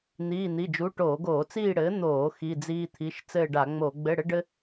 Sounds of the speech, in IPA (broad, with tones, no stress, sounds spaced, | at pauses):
n̪ iː˧˥˧ n̪ i˧˥˧ d͡ʒ u˧˥˧ ʈ oː˧˩˧ ɡ oː˧˩˧ t͡s iː˦˨ ɽ ɘː˩˥ n̪ oː˧˩˧ x i˧˥˧ d͡z iː˥ t̪ʰ i˧˥˧ ʃ t͡s ɘː˦˨ ɖ a˧˩˧ ŋ͡m o˧˩˧ ɡ͡b ɘ˧˥˧ ɽ ɘ˥ ɖ ɘ˥